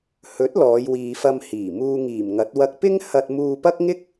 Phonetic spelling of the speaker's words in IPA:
hɵ˨˥t̚ lɔː˨˧jwiː˨fɐ˧m hiː˨˩ muː˧ ŋiː˨˩mŋɐ˨˥t̚ wɐ˧k̚pɪ˥ŋ hɐ˧t̚muː˧pɐ˥k̚ ŋɪ˥k̚

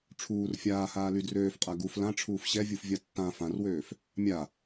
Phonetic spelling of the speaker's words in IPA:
ʈ͡ʂʰuːr fʲaːhaː lydrøːfqʼa ɡuf lãʈ͡ʂʰuːf ɕɛvʲufvʲa tːã fãrwøːf | mʲa

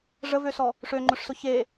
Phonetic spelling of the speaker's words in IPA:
ʐəvøsɔ | ʂøŋ͡ǃʊʂsʊ çe

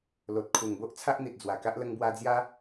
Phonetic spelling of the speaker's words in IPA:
lo˨t̚kʰu˨˩ŋbo˦ʔ t͡sʰa˦ʔn̪i˨t̚d͡zwa˨˩ka˦ʔ lə˧ŋbwa˧d͡zja˦

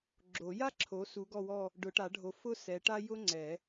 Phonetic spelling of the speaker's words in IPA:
ɡ͡ǁo˨˩˦ja˥ǁʰo˨˦ su˨˦ɡɔ˦˨wɔ˦˨ | ɖʊ˨˩˦ʈa˨˩˦ɖʱo˨˦ fʊ˥sɛ˨˦ʈa˥ jʊ˥ŋ͡ǀɛ˨˩˦

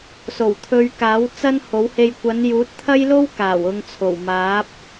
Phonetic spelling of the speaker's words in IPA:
so˨˩wt̪ʰɵ˧ɥkaː˨˥w t͡sɐ˥nho˨˥whe˧j kʷɐ˨˧njuː˨˥t̚t̪ʰɐ˥jlo˥w kaː˨˩wʊ˧ŋt͡sʰo˨˩wmaː˨˥p̚

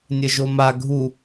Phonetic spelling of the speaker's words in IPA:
nʲəʒoma ɡʱu

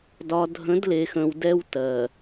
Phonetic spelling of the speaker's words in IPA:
dɒ˨dʱə̃˨˦dle˨xə̃˨w dɛ˦w tɜ˨

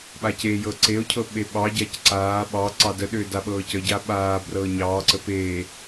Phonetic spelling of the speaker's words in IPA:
ɓacejɤ ǀeo̯cʰɤ ɓeɓɑɟac ǀaː ɓɑ ǀɑdəɗʏː daɓɤːcəɟa ɓaː brɤːɲɑːǀə peː

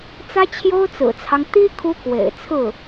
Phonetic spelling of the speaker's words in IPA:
t͡sä˥t͡ɕʰjo˥ʊ̯t͡sɹ̩˨˩t͡sʰɑ˦ŋ t̪i˥ kʰu˥kwḛ˨˩ɪ̯t͡sʰɹ̩˥˩

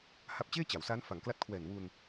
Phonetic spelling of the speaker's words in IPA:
ha˦˥p̚t͡ɕeː˥˩t͡ɕa˩˦wsaː˦˥n fa˩˦ŋkla˦˥t̚kʰwɛː˨˩n wu˧n

